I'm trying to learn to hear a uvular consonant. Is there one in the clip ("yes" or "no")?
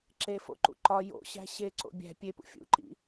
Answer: no